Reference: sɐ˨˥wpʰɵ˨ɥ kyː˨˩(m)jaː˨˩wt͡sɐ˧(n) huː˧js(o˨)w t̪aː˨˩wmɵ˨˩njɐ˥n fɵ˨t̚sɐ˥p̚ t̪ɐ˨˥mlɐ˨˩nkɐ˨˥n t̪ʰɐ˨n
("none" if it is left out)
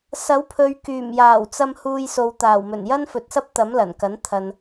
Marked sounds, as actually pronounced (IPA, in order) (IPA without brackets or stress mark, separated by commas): m, m, o˨